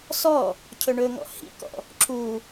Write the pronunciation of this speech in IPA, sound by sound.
s ɔ | cʰ ɵ ɳ ɵ ŋ ɔ̰ h ḭ k ɔ̰ | ǁ u

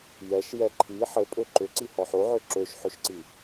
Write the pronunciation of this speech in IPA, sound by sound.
j ɛ ʃ j ɛ ǃʰ i ħ ɘ pʼ ø ǃ ʏ ǀ i h ɔ ħ o ʕ ø ǁ ø ʃ ħ ø ʃ ǀ i

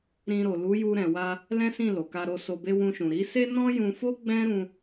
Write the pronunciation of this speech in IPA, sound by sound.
ɾ ĩ˧ ɾ o˨ l u˨˦ j u˧ ɾ ɛ̃˨ w a˧ | l ɛ̃˦ s ĩ˦˨ l o˨ k a˧ ɾ o˧ s o˧ b e˦ w ũ˧ ʃ ũ˨ ɾ i˨˦ s e˦ n ɔ̃˦ j ũ˧ f o˦ ɡ͡b ɛ̃˦ ɾ ũ˧

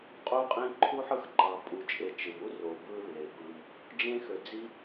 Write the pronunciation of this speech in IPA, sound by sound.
qʼ u˦ qʼ ĩ˦ ǃʰ u˥ ħ ɯ˥ x ǃ ɑ˨ pʼ u˨ t͡ʃʼ e˨ t͡ʃ ɯ˩ m u˥ r o˩ b ɯ˥ lː e˩ b ɯ˨ m | d͡ʒ ẽ˥ x ø˨ d͡z i˥

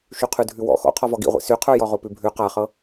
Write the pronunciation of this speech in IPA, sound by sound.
ʃ y qʰ ʉ dʱ ʉ w ɔ̰ x ɔ̰ qʰ ɔ v ɔ ɡ ḭ ʁʷ ḭ s y qʰ ə˞ j ɔ ʁ o p ʉ bʱ ʉ q a χ ɤ

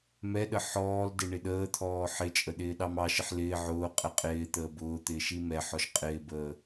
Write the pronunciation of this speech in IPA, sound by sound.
m ɛ ɗ ə ħ ɔː l d ɪ ɳ ɪ ɗ əː t̪ʰ ɔː ħ ɪ t͡ʃʼ ə ɗ ɪː ɗ ɑ m ɑ ʃ ɪ ħ l ɪː ʕ ʊː qʼ ɛ qʼ ɪː t̪ əː b ʊː t̪ ɪː ʃ i m ɛ ħ ɔ ʃ qʼ ɪː b əː

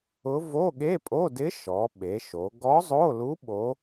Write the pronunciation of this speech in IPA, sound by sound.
ʊ˧˥ v o˧˥˧ ɠ e˧˥˧ pʼ o˧˥˧ d ɪ˧˥ ʃ ɔ˩˧ ɓ e˩˧ ʃ o˩˧ ɡ ɔ˧˥ zˤ o˧˥˧ l u˧˥ ɓ o˧˥

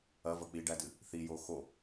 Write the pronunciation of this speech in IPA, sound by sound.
ɐ v ɐ k͡p i ɖ æ d ɨ | θ i j o x o

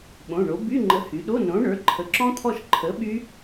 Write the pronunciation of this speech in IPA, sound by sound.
ɓ õ˩˧˩ ɳ o˩˥ b y˧˥˧ ŋ͡ǃ ə˩˥ h y˩˧ ɗ o˧˥˧ n õ˩˥ ɳ ə˞˩˧˩ ǃʰ ə˩˥ ǁ ɔ̃˦˥ t̪ʰ ɔ˦˨ ʃ ǃʰ ə˩˥ ɓ y˦˥

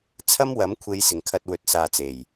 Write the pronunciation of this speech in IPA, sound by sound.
t͡sʰ ɐ˥ m w ɐ˨˥ m kʷʰ e˨˧ j s ɪ˨˩ ŋ kʰ ɐ˨ t̚ w ɵ˨ t̚ s aː˨ t͡s e˨˩ j

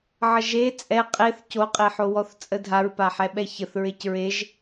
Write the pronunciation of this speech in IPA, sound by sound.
ʕ ə ʒ e t͡sʼ ɛ qʼ e θ c o qʼ e ħ o w ɔ θ t͡sʼ ə dʱ a ɹ p a ħ ɛ ɓ ɛ ç ə θ ɹ e c ɹ e ʒ

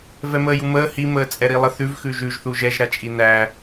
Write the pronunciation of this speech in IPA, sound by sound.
v ɛ m əː j u m əː h i m əː t͡sʼ ɛ ɾ i lˠ ə θ ʉ v x ʉ ʒ ʉ ʒ θ u ʒ ɛ ʒ ɾ a t͡ʃʼ i n æ

